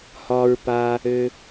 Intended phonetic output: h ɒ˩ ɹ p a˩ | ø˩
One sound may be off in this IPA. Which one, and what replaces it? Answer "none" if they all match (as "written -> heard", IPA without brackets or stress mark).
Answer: none